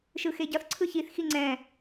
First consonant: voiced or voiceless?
voiceless